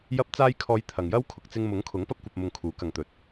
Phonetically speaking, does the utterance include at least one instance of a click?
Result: no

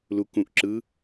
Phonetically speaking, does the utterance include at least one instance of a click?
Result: yes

